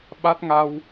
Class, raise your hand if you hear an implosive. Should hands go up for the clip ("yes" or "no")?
yes